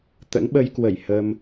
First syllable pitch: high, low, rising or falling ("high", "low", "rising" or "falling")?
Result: rising